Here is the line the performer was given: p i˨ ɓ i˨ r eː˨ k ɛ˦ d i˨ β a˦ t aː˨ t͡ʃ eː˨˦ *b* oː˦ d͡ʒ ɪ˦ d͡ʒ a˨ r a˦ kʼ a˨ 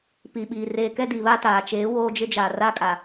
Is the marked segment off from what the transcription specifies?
yes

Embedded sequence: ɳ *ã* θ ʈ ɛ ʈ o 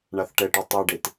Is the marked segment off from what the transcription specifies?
yes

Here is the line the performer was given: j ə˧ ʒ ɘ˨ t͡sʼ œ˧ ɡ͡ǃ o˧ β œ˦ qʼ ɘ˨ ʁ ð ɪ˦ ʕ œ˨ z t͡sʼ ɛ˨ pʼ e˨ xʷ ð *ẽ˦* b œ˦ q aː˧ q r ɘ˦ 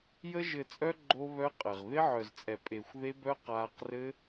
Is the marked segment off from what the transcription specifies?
yes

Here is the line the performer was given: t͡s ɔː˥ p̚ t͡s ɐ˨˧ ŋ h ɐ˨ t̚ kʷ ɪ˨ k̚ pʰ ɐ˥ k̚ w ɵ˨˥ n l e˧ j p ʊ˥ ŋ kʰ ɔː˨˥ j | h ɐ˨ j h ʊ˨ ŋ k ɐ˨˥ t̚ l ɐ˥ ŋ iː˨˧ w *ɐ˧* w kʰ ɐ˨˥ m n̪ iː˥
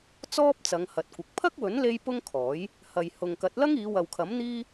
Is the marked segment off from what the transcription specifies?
yes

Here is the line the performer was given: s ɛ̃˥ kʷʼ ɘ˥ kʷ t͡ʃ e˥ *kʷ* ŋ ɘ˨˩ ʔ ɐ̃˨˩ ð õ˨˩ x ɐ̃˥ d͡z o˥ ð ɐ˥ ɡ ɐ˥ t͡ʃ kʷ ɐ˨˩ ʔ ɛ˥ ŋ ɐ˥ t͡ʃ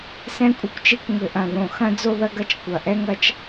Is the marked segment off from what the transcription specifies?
no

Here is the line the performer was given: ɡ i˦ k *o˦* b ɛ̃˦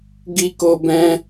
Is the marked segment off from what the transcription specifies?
no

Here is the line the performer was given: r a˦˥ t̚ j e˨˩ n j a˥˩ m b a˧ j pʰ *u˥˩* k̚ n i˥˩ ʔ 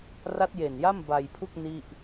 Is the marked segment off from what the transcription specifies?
no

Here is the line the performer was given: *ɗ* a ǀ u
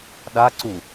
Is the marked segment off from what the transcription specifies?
no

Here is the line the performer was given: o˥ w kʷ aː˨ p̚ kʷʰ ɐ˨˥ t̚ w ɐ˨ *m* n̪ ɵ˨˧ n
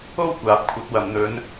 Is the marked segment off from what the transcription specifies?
no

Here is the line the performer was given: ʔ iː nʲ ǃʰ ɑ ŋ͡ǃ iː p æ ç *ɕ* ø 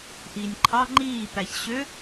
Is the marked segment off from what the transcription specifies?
no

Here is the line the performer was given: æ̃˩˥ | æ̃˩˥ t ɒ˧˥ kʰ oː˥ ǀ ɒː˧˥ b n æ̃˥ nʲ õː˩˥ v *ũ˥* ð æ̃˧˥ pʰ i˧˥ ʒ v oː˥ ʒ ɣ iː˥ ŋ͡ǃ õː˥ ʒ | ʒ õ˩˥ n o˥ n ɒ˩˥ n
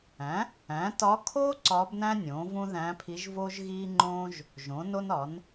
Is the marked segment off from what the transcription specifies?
no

